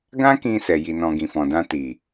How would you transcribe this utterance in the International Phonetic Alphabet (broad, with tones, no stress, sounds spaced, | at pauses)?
ɡ ã˦ k ĩ˧ s ɛ˨ j i˨ n ɔ̃˨ ɡ ĩ˨ f ɔ̃˨ d ã˧ t i˨